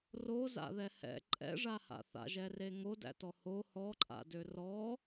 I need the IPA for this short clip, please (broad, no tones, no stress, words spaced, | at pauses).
roza̰ðɛ hɛ̰ ǃʼɛ̰ʐaha̰ θa̰ʒɛre ŋodæ̰tɔ ho hɔǃʼa̰dø rɔ